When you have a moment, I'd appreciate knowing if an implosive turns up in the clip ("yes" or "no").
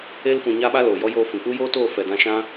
yes